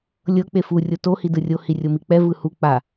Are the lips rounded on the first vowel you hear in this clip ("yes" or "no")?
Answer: no